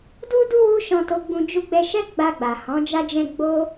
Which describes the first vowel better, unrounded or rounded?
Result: rounded